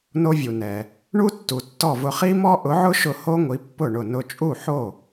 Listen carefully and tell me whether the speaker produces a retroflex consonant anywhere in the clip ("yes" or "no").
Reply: yes